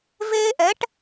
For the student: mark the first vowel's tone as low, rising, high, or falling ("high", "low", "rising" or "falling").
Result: high